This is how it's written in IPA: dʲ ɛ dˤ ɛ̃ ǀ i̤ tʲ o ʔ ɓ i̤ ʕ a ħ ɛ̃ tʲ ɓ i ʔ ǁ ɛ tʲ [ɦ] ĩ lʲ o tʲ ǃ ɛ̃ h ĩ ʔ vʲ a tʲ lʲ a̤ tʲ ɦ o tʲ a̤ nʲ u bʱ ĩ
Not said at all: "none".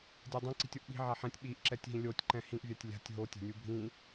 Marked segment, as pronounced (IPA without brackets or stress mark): ɦ